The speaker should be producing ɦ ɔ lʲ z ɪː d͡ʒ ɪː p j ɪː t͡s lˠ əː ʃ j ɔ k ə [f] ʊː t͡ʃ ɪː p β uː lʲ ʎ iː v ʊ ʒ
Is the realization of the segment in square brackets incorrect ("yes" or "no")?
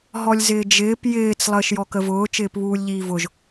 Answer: yes